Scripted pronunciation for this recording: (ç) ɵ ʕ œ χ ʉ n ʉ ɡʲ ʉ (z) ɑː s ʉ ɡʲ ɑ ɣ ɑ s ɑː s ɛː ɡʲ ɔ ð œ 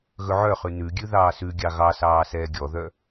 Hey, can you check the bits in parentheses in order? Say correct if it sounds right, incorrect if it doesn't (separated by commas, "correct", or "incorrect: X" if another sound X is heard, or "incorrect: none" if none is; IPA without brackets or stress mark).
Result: incorrect: ɣ, incorrect: ð